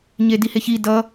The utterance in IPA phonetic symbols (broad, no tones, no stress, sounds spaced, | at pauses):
ɲ e d i h e ç i d ʌ